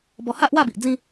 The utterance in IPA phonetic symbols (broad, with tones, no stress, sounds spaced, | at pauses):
b ɔ˧ h a˦ ʔ w a˥˧ b i˨ ʔ d͡z ĩ˥˧